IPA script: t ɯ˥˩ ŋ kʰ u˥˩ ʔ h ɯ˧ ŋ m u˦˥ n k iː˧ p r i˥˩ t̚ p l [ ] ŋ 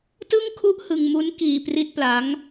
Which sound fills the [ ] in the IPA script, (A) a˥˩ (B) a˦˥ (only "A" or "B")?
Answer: B